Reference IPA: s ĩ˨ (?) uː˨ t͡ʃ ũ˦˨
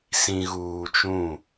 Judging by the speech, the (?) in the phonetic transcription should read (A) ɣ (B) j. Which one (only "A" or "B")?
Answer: A